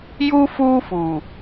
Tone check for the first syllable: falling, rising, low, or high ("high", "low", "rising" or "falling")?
high